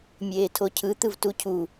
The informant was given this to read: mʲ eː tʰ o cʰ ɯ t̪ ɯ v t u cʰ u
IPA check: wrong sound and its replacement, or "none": none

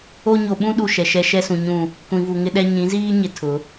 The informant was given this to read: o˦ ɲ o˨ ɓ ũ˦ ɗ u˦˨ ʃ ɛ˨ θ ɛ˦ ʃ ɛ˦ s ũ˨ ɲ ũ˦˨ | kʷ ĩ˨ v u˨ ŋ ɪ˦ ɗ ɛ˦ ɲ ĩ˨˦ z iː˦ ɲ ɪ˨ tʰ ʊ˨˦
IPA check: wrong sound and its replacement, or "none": θ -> ʃ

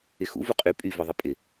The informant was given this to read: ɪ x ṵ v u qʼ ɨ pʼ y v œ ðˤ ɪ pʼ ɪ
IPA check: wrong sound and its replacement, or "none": ɨ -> y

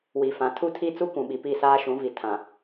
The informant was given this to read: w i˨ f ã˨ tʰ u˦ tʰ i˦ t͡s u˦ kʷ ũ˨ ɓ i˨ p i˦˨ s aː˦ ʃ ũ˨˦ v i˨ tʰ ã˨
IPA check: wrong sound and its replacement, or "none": none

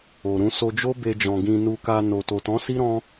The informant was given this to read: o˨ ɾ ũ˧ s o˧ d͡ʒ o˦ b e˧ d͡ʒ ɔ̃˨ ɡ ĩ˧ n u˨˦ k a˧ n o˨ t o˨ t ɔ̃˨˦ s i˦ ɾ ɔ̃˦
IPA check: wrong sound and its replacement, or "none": u˨˦ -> u˧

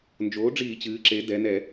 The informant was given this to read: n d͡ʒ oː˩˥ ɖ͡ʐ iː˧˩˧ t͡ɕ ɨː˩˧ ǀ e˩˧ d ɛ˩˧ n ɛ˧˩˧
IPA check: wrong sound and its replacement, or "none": ǀ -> ǁ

